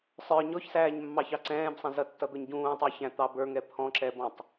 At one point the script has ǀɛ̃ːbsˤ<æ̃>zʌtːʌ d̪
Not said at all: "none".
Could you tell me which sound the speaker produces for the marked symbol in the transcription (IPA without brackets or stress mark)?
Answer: ɛ̃